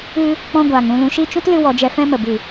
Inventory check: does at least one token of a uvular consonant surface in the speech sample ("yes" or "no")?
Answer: no